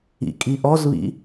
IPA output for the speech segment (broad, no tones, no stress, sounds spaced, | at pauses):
ḭ kʼ i ʔ ɔ z β ḭ